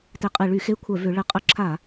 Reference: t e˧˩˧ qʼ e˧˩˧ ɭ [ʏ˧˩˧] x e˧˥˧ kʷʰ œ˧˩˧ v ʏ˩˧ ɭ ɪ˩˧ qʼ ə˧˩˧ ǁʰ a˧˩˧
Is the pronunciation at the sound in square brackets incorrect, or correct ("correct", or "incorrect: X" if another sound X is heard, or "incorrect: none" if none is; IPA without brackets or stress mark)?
incorrect: y˧˩˧